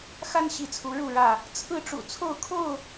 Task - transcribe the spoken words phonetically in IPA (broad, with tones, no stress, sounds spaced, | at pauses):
x a˦ n ɕ i˨˦ t͡sʰ u˨˦ ɻ u˥˨ ɻ ä˥˨ | t͡sʰ ɹ̩˥˨ ʈ͡ʂ ṵ˨˩ t͡sʰ o˥˨ ʊ̯ kʰ o˥˨ ʊ̯